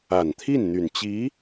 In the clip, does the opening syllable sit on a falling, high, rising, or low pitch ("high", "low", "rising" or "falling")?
low